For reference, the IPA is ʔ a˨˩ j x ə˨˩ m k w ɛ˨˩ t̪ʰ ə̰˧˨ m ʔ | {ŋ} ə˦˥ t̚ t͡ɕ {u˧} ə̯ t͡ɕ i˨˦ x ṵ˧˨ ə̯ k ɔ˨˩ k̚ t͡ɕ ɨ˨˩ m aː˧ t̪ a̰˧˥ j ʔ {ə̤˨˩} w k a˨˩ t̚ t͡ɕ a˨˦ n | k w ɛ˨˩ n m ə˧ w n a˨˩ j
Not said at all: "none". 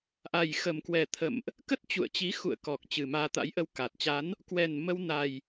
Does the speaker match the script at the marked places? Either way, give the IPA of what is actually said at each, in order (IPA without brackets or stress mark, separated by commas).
k, ṵ˧˨, ə˧